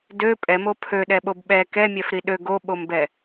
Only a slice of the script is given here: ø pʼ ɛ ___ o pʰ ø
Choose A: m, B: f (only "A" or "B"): A